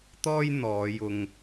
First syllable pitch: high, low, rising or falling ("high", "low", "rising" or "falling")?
high